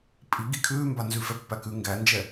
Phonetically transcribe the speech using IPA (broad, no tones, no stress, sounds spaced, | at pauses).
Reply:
pʼ i ɡ i kʰ ʉː m b a n z ʉ f ɛ pː æ k ʉ ŋ ɡ æ n d͡ʒ ɛ